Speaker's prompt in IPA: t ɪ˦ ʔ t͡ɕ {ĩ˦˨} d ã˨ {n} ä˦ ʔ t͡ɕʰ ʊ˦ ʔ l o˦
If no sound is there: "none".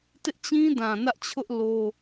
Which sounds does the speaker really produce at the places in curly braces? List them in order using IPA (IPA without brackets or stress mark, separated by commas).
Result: ĩ˦, n